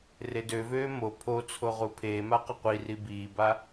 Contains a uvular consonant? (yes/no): yes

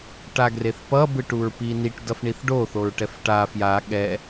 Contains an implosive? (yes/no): yes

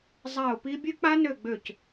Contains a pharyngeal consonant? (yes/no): no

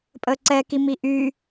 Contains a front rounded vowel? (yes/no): yes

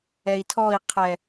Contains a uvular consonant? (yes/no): yes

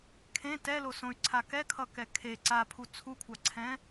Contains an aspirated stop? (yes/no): yes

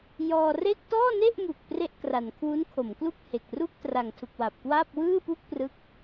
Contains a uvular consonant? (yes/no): no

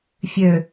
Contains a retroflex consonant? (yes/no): no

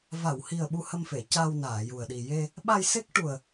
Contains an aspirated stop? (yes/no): no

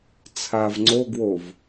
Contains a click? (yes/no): yes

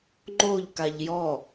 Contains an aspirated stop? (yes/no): no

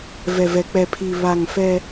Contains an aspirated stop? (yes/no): yes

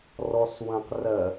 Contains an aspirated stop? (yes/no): no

